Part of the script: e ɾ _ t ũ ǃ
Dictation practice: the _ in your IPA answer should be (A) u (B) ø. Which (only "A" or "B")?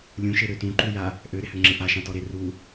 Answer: B